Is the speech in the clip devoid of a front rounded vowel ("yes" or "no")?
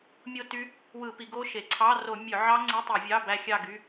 no